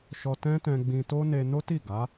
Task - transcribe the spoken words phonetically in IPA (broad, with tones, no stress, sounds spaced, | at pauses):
ʃ ɔ˧ t ɛ̃˦ t ɛ̃˧ ɡ͡b ĩ˧ t o˦ n e˧ n o˦ t i˦˨ ɡ a˨˦